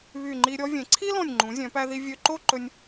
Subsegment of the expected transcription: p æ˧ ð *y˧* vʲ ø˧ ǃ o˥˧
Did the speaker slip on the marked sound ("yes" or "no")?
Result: yes